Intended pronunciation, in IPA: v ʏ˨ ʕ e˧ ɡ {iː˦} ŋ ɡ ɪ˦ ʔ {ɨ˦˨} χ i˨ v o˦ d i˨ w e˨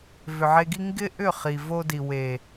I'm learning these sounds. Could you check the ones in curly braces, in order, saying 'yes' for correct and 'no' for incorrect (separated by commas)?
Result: no, no